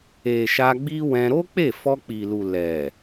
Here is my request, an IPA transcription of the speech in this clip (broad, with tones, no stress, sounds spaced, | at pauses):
e˨ ʃ a˧ ɡ͡b i˦ w ɛ̃˧ ɾ o˦ k͡p e˦˨ f ɔ˧ k͡p i˨ l u˨ l ɛ˨